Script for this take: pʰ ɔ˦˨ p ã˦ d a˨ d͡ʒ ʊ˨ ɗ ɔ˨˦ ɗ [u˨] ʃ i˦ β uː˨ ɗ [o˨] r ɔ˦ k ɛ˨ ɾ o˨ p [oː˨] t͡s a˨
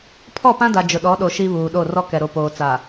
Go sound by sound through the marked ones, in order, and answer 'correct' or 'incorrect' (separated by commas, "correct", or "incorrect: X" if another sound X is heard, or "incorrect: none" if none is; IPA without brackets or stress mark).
incorrect: o˨, incorrect: o˦˨, correct